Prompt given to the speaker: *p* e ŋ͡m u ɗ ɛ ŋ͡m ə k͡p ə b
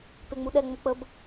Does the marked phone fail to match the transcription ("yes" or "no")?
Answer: no